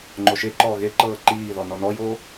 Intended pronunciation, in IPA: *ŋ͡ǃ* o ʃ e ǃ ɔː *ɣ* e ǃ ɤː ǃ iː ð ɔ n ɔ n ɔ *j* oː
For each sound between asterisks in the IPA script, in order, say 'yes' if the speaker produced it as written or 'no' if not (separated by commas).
yes, yes, yes